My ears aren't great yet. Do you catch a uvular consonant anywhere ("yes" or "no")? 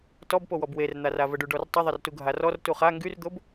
yes